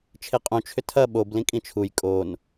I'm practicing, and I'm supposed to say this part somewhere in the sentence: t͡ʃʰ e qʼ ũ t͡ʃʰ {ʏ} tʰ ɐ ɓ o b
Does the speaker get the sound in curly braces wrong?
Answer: no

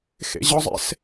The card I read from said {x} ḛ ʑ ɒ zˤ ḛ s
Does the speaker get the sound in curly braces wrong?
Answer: no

